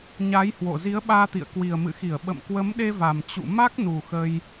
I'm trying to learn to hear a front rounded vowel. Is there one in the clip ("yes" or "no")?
no